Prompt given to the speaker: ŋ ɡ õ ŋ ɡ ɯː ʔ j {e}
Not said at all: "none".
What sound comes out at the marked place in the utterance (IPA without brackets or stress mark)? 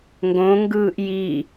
i